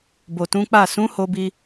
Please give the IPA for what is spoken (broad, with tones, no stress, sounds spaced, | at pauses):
b o˨ t ũ˨˦ k͡p a˦˨ s ũ˨˦ h o˧ b i˧